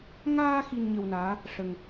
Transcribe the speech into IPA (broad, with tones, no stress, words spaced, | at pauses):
ŋaː˧ xi˧nɲə˧wnaː˧˥ | ʂə˧ŋ